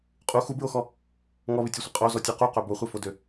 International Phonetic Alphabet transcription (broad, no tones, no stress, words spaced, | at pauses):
qʼu xubɹoxɔ | ŋɔβɪtʲøsʷɪ qʼozɔtʲo quqø boχʷɛfodø